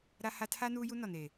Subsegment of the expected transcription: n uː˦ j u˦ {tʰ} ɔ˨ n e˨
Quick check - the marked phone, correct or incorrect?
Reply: incorrect